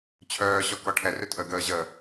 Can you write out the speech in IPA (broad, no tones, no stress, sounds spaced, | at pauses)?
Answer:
t͡ɕʰ œː ɕ ɔ k ɔ ʈʰ ɛ r ʏ tʼ ə ɡ əː ʑ ə